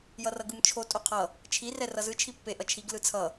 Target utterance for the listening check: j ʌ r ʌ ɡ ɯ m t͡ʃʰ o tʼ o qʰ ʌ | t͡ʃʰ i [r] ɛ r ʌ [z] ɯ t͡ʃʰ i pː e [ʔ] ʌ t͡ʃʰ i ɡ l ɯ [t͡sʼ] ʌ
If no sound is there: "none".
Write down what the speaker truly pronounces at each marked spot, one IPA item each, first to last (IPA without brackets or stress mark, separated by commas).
r, z, ʔ, t͡sʰ